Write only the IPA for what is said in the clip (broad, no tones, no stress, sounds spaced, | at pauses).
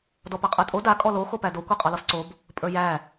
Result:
d ɔ p a qʼ ə˞ tʼ o d a kʼ ɔ l o x o p æ d o kʷ a qʼ ɒ l ɔ s ǀ o b | pʼ ə˞ j æ